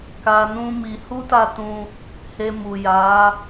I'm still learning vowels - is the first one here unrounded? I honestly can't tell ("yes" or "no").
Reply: yes